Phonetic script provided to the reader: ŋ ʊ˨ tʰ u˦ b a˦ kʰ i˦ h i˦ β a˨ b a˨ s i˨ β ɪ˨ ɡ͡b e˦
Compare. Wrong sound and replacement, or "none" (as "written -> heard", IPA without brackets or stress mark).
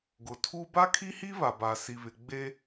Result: ŋ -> ɡ